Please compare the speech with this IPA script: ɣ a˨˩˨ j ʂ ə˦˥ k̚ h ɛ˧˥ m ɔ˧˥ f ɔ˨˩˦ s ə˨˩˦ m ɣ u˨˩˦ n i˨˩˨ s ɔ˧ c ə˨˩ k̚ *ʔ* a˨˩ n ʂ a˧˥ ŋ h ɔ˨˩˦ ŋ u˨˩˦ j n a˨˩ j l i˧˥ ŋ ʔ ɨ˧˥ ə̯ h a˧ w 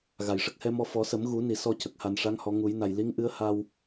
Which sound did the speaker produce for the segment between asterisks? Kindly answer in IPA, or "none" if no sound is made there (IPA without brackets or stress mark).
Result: h